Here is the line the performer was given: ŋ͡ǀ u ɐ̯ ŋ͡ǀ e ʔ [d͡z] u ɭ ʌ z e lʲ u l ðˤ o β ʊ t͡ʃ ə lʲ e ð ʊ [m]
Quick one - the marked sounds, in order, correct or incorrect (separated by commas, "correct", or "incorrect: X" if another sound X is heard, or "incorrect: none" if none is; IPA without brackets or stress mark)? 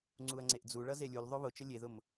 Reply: correct, correct